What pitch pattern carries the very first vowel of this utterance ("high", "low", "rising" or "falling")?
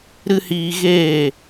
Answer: high